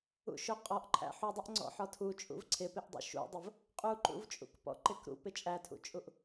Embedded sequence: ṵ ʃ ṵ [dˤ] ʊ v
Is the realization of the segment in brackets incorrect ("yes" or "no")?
no